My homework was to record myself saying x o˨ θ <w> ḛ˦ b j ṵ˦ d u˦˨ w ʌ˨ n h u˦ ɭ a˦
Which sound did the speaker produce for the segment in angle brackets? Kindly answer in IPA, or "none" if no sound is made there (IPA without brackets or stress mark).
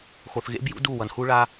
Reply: ɣ